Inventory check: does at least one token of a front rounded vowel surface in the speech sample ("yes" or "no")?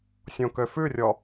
yes